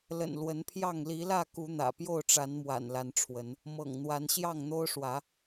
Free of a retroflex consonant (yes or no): no